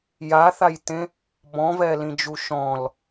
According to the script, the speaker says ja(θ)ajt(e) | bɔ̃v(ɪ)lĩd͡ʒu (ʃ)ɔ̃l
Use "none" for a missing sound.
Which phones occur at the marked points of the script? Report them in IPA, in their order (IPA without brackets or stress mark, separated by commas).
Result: θ, ẽ, ɛ, ʃ